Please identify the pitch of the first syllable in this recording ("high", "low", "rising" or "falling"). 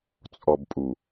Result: low